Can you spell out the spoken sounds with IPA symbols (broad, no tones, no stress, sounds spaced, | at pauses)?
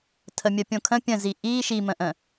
tʰ ə mʲ ə pʲ õ kʰ ə̃ pʲ ə̃ z i ʔ i ʃ i m ə̃ ʔ ə̃